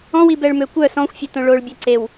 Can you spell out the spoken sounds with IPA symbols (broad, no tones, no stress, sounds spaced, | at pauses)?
ɔ̃ w i b ɛ ɭ m ø kʷ œ s ɔ̃ xʷ fʲ e t õ ɭ o ɭ bʲ e ǀ e w